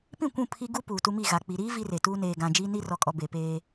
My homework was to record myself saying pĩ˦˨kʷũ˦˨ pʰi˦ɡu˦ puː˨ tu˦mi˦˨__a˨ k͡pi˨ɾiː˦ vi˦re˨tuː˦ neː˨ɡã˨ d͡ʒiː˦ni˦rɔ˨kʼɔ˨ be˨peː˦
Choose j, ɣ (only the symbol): ɣ